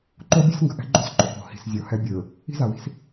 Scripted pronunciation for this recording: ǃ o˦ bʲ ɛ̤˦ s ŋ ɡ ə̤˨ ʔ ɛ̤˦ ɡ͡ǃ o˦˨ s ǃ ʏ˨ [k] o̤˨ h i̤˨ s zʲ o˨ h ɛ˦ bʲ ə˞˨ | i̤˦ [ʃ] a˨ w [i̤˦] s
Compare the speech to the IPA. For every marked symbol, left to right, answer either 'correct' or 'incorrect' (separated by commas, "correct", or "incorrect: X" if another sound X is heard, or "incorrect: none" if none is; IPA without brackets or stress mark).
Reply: correct, incorrect: z, correct